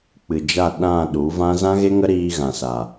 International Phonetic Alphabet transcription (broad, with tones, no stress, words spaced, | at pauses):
k͡pɨ˨d͡ʒa˦˨ ɗã˦˨ ɗu˨˦vã˦ zã˦ɣe˦ŋə˦ ɾiː˧ ɣã˨sa˨